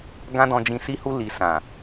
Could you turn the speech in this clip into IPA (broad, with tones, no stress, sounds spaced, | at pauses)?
ɡ ã˦ d ɔ̃˧ d͡ʒ ĩ˧ s i˦ h u˦ l i˧ s ã˨